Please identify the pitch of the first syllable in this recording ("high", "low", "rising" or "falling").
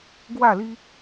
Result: falling